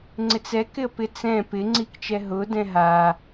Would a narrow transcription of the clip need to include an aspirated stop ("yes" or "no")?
no